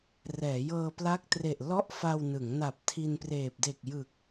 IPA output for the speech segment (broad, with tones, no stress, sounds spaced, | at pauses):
r ɛː˩˦ j ɤː˧ p l a˦˥ k̚ t r e˨˩ ʔ l ɔ˥˩ ʔ f a˧ w n ɯ˩˦ ŋ n a˨˩ p̚ tʰ i˧ n p r eː˨˩ p̚ d e˨˩ k̚ j ɯ˨˩ k̚